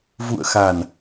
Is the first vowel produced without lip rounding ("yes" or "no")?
no